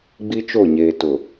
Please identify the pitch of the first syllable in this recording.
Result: high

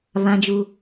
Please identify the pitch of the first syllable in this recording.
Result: low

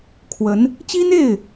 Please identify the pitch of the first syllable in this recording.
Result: rising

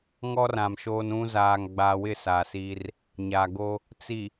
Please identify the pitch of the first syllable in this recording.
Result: high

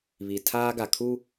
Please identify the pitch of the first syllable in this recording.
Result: low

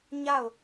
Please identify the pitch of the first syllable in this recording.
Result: falling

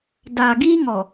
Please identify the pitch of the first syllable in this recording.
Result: low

